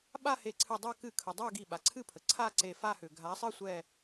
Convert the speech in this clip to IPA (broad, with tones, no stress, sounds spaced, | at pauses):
ɓ a˥˧ h e˨˦ ǀʰ ɨ˧˩ dˤ a˥˧ k ɨ˧˩ kʰ ə˩ dˤ a˥˧ ɡ i˧˩ ɓ a˩ ǀʰ ɨ˥˧ pʰ ə˩ ǀʰ a˥˧ ǀ e˧˩ f a˥˧ h ʏ˩ ɡʱ a˨˦ sˤ ɨ˥˧ sʷ ɛ˥˧